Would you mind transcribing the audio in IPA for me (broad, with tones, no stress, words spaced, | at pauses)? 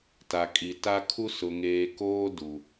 ta˨kʼi˨ta˦kʰu˦ sʊ˨ŋeː˨koː˦ du˨